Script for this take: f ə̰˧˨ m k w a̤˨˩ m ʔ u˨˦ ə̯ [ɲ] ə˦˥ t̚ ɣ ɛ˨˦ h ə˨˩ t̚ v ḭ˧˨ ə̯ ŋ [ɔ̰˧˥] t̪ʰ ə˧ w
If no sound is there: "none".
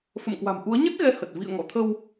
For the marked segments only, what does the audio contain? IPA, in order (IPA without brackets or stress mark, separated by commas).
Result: ɲ, ɔ̰˧˨